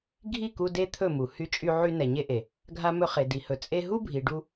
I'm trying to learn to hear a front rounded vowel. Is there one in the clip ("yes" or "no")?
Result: yes